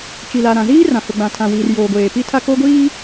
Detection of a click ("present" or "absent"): absent